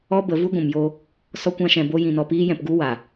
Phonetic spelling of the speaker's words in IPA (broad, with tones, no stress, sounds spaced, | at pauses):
ɔ˦ b ə˨˦ v u˦ ɡʷ ũ˨ m j o˧ | s ɔ˦ kʷ ã˦ ʃ ɛ̃˧ b o˦ j ĩ˧ n ɔ˧ p iː˦ j ɛ̃˧ p ɡ u˦ w a˨